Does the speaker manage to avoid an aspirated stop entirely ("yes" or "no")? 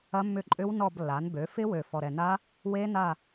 yes